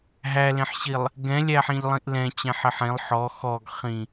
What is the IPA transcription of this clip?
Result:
ɦ æ l ẽ ħ ɕ i lˠ | ɡ ɛ̃ lʲ æ ħ ĩ ʎ lˠ ĩ ʔ l ɛ̃ t͡ɕ ɛ̃ ħ ɪ ħ ẽ lˠ ħ ɔ x ɔ ɡ χ ĩ

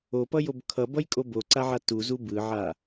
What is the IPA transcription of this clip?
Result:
o p ʌ j o b kʰ ʌ b ʌ j kʼ o b o ǀ a ʕ a t u z u b ɯ ʕ a

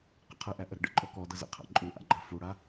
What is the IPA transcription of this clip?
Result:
q ə̰ qʰ ə ʔ æ ʔ ə ɾ ə̰ ɖ ə̰ ǃʼ ɔ k ɔ d ə z ə̰ qʰ a̰ ǃʼ u ʔ a̰ ɡ͡ǃ a f u ɽ a

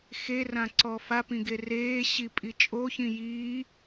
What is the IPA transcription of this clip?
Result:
x e r ã ǀ ɔ f a p ĩ ɡ e r eː ɕ i pʼ i t͡ʃʼ o ç ĩ j iː

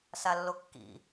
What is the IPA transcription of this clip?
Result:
s a lː o kː ḭ

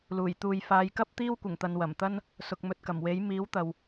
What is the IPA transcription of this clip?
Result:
l uː˨˩ j t̪ uː˨ j f aː˨˧ j k ɐ˥ p̚ t̪ iː˥ w kʷ ɪ˨˩ ŋ t̪ ɐ˨ n w ɐ˨˩ m t̪ ɐ˥ n | s ʊ˨ k̚ m ɵ˨ t̚ k ɐ˨˩ m w e˨˥ j m iː˨˥ w t̪ ɐ˨ w

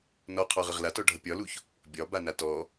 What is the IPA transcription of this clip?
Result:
n ɔ qʰ ɔ ʁ ə ʁ l a t ɔ ɖʱ ʌ pʲ ɒ l u ç | bʲ ɒ b a n a t ɔ

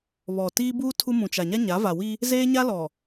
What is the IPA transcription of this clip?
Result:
β ɔ˨ t iː˦ b uː˦ tʰ u˦ m ũ˨ t͡ʃ a˨ ɲ a˦ ɲ a˨˦ v a˨ w i˦ | z eː˦ ɲ a˦ l ɔ˨

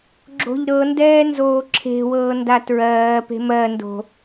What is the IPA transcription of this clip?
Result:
ɡ͡ǁ o̤ ʎ ɾ ɤ n d ɛː n z oː ǁʰ e̤ w ɤː n d a t ɹ ɜː p e̤ m ɜ n d o̤

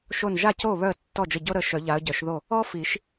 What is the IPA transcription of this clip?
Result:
ʃ o˧˩ n ʒ a˥˩ c o˥˩ β œ˥˩ ə̯ tː ɔ˥˩ d͡ʒ ə˧˩ ɟ o˥ ɾ ə˨˦ ʃ œ˨˩˦ ʎ a˨˦ ə̯ ɟ œ˨˩˦ ʃ ð o˥˩ | ɔ˥ f i˨˩˦ ʃ

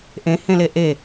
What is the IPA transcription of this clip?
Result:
ʔ ẽ h ẽ l e ʔ e

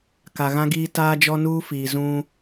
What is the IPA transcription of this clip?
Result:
k a˨ ɣ ã˦ ɡ iː˦ t aː˦ d͡ʒ ɔ˦ n uː˦ f iː˨ z ũ˦

